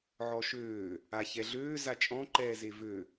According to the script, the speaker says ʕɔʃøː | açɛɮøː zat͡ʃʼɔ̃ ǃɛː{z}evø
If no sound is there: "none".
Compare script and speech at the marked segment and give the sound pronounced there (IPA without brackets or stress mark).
z